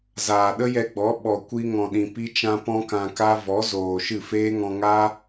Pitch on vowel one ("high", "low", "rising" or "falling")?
low